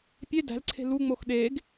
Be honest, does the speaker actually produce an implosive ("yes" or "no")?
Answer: yes